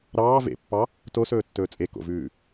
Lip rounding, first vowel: unrounded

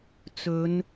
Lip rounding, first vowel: rounded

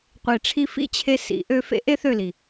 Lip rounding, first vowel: unrounded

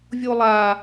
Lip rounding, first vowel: rounded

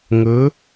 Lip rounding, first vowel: rounded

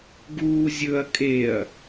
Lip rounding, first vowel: rounded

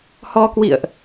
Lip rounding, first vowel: rounded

